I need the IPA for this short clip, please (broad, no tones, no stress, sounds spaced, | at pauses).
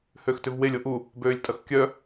h ø x t ʏ v w e lʲ o ʔ u | b øː lʲ tʼ ɐ x kʲ œ